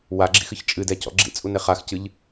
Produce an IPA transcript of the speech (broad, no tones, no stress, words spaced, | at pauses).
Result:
waɡ͡ǁḭxɨç t͡ʃʼɨdɛcɔ̰ ɡ͡ǁḭt͡sʼune χaxcɨʎ